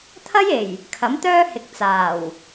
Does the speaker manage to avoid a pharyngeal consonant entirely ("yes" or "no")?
yes